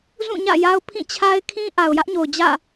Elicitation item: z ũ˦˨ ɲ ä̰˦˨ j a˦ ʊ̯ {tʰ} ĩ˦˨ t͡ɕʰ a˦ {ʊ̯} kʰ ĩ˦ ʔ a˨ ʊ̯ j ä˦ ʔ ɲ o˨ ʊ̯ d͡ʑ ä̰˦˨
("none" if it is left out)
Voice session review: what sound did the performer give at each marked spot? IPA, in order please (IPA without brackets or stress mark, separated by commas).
pʰ, ɪ̯